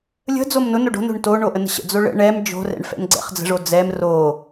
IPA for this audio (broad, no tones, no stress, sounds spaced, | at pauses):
lʲ ə̤ d͡z o m n ʊ n o ɖ o̤ n o̤ ɳ t o ɳ o ʔ ə n ə̤ ɕ ə̰ d͡z o ɭ ə̰ ɳ ɛ m d͡ʒ o̤ r ɛ̰ ɳ f ɛ̰ n ɡ͡ǀ ɛ̰ χ d͡z ə̤ ʐ o d͡z ɛ m r o